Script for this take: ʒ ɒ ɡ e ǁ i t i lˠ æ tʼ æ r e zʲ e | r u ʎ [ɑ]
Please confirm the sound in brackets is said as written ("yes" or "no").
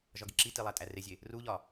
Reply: no